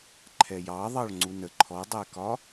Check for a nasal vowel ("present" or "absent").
absent